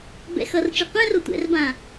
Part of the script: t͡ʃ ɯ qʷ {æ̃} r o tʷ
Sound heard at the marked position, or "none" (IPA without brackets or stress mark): ɛ̃